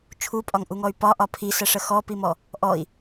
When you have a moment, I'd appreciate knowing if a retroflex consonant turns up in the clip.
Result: yes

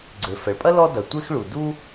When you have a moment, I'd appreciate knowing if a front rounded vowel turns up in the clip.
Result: yes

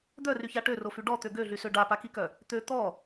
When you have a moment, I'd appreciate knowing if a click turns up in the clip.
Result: no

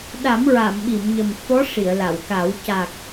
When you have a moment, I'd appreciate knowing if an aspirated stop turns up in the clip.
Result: no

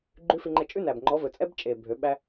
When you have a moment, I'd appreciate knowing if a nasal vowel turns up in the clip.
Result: no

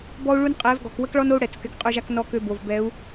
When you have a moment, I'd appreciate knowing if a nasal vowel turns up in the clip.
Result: no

